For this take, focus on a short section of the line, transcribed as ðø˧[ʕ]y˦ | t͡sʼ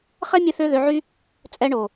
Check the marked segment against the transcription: correct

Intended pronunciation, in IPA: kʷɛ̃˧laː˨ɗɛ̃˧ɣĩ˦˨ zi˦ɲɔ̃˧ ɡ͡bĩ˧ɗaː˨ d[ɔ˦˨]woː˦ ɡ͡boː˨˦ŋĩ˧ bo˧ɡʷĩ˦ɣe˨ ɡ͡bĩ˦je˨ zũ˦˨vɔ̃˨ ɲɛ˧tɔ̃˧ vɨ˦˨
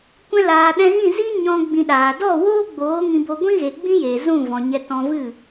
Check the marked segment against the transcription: correct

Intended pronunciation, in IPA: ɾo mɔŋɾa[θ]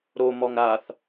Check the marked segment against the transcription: correct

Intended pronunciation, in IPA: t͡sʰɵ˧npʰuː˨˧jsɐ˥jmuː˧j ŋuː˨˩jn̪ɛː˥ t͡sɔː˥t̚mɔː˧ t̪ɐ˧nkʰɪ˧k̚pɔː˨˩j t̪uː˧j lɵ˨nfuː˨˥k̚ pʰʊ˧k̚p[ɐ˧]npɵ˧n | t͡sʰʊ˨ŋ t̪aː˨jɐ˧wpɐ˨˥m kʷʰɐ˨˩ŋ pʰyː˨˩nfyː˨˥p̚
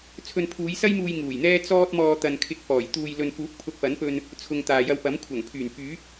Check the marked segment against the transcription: incorrect: ɐ˨˥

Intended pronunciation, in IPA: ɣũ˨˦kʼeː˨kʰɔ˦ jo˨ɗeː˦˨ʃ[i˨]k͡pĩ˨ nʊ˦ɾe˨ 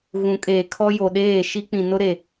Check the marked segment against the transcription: incorrect: i˦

